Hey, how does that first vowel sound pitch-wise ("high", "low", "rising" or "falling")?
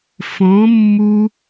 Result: rising